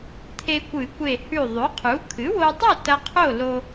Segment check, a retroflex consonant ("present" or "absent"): absent